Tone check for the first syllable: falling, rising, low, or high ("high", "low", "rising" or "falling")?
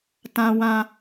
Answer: high